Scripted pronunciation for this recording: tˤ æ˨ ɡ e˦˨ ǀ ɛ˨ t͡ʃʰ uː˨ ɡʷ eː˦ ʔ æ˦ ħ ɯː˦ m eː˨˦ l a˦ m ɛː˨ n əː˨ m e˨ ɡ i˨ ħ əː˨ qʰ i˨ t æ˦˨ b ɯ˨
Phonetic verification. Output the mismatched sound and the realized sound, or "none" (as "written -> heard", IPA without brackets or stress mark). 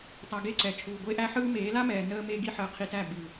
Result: none